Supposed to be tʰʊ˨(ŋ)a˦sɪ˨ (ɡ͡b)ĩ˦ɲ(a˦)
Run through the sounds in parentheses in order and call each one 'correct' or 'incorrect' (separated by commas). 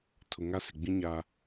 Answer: correct, correct, correct